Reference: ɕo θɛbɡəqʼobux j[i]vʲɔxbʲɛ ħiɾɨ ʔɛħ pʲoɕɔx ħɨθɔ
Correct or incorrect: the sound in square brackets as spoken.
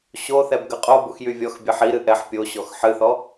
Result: incorrect: y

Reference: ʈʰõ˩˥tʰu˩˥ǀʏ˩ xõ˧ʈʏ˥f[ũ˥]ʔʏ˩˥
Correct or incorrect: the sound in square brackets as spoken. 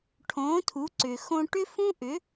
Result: correct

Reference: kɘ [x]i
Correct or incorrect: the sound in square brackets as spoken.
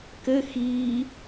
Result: correct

